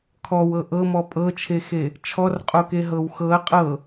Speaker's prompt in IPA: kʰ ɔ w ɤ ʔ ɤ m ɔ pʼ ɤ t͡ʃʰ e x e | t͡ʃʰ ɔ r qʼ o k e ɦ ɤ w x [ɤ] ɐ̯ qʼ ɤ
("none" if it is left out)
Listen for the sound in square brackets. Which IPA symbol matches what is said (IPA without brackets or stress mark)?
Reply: ɤ